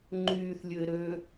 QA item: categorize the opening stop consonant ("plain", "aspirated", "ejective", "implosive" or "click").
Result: click